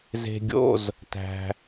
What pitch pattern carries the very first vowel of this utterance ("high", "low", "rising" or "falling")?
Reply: low